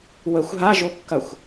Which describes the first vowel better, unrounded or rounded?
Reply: unrounded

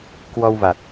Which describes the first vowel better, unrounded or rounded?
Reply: rounded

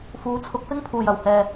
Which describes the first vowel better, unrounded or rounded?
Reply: rounded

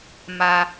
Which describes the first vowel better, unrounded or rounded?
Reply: unrounded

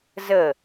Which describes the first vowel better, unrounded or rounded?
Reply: unrounded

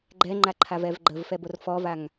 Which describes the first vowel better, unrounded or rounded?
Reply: unrounded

